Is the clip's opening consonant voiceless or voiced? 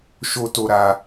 voiceless